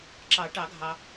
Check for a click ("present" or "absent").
present